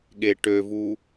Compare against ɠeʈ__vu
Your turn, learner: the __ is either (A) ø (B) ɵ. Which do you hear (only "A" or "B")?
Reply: A